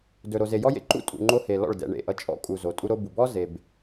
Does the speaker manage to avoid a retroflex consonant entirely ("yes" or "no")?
no